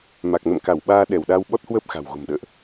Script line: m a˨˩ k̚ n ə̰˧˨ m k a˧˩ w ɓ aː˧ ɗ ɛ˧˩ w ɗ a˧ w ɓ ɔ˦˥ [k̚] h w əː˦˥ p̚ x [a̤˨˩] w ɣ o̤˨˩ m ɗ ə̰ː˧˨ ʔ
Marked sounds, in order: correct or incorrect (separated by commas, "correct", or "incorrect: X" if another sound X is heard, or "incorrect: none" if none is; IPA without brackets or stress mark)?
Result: incorrect: t̚, correct